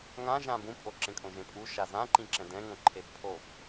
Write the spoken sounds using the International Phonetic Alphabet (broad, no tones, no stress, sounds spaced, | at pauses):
ŋ ã ʒ ã b ũ pʼ o ǁ ẽ kʼ õ ʒ ẽ pʼ u ʃ a z ã ǃ ĩ ǁ ɛ̃ d ɛ̃ ŋ õ ǃʰ e b pʰ o b